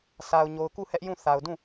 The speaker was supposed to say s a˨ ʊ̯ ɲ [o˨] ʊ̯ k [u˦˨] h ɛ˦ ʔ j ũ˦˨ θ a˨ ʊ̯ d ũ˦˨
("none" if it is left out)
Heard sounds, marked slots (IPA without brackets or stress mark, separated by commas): o˨, u˦˨